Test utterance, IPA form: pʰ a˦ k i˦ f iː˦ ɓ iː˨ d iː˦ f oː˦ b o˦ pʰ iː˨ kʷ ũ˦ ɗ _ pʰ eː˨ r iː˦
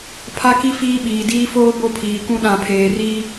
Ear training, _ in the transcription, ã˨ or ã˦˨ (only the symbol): ã˨